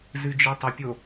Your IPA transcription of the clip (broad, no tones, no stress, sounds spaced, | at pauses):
z ɨ d͡ʒ ɨ tˤ ə pʲ o